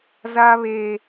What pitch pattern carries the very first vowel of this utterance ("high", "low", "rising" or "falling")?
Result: high